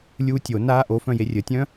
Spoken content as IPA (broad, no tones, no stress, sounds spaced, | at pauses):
lʲ uː tʲ o n aː ʔ o f œ̃ j e rʲ ə tʲ œ̃